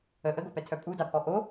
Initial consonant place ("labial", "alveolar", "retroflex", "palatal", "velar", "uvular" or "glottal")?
glottal